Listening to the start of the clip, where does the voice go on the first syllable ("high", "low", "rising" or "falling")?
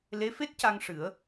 rising